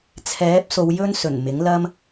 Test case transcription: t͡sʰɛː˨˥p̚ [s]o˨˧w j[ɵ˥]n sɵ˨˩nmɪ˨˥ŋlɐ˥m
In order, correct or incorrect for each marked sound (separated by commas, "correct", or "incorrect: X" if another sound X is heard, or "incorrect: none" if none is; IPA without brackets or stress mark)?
correct, correct